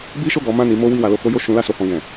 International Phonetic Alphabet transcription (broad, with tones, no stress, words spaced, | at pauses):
bi˦ʃo˦˨ɡɔ˨˦mã˦˨ ni˨˦mo˦ wi˦˨wa˧lo˧ko˦ jo˦˨ʃũ˨˦ la˧so˧hɔ̃˧ ɡɛ̃˨